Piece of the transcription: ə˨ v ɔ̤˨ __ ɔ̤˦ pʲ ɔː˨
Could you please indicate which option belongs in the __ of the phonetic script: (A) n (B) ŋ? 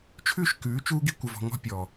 B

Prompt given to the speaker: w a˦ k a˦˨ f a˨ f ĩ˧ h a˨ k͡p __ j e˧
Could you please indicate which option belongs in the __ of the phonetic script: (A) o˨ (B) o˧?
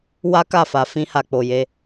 A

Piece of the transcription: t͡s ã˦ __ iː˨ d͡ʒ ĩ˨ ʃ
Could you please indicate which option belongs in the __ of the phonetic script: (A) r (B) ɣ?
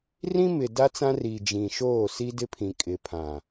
A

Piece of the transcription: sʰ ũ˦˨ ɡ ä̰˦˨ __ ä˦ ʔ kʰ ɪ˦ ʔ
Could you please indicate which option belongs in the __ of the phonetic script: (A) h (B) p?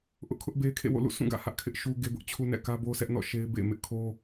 A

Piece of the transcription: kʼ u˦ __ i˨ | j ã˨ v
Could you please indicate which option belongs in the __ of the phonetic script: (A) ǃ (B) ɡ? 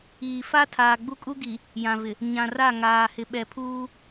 B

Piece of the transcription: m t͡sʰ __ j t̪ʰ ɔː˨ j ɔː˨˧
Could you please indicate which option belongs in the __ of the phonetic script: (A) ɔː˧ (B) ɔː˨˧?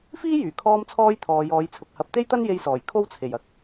A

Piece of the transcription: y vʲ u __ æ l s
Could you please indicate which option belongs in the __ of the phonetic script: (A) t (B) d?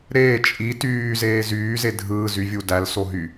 B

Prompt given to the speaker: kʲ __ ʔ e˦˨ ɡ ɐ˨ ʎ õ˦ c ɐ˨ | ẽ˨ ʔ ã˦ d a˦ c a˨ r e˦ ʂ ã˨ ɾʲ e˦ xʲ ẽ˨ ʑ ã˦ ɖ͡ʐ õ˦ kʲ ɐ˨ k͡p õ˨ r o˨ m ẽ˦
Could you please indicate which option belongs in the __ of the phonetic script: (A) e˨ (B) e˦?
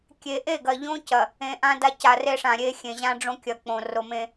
A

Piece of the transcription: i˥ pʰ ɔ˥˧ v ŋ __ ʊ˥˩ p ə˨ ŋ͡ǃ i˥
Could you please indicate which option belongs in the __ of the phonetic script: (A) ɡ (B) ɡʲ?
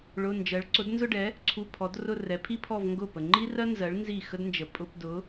A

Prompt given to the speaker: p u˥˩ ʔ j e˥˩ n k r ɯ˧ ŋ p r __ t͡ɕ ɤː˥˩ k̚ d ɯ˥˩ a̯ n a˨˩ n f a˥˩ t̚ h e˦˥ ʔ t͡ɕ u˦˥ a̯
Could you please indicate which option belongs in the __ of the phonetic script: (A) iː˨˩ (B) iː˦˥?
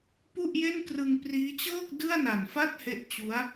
B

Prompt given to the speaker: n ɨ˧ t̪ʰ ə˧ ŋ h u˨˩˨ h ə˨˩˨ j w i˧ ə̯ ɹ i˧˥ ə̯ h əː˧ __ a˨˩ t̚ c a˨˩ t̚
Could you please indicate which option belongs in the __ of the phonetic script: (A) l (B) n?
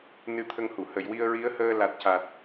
A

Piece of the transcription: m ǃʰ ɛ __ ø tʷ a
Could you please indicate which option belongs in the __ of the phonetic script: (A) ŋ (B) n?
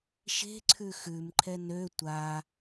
B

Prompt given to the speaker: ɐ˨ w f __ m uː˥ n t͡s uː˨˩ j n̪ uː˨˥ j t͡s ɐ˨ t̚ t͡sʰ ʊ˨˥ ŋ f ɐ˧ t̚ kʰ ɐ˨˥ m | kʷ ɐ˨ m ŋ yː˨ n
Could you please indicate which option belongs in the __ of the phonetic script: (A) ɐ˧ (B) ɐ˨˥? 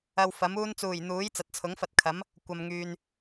B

